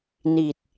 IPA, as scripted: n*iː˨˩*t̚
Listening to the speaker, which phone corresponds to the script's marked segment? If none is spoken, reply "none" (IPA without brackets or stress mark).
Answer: i˨˩